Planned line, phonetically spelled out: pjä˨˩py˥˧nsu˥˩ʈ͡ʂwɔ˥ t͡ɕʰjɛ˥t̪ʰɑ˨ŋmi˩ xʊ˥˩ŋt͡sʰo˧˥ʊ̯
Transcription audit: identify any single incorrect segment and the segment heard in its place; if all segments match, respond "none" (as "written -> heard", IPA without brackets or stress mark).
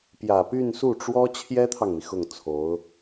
none